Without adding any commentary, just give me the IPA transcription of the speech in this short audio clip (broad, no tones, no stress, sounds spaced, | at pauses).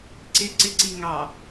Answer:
ǀ ɪ ǀ ɪ ǀ i ŋ ɑ